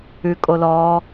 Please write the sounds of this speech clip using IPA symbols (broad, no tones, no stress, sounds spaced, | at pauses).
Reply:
ʉ kʼ o l ɔː